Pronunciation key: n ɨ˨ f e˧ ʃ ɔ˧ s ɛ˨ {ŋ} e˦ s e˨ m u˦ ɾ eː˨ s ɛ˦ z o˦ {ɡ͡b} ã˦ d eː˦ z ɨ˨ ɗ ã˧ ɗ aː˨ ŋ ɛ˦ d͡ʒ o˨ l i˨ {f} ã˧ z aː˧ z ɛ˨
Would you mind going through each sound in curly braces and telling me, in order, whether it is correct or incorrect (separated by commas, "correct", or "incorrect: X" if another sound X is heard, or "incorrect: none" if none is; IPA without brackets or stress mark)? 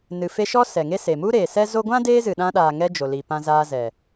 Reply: correct, incorrect: ɡʷ, incorrect: p